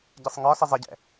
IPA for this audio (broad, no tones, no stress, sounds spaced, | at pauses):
ɟ i sˤ ŋ ɒ s ɪ zˤ ɪ ɟ ɛ̰